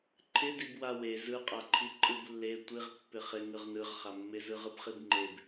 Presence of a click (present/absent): present